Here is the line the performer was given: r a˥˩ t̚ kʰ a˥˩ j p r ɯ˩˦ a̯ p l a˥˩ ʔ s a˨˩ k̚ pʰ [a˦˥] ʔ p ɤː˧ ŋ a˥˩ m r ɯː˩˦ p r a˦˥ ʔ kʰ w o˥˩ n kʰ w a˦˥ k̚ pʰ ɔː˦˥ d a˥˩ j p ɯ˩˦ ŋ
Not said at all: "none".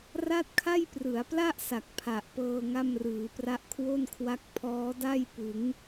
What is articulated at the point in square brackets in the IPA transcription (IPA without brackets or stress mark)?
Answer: a˨˩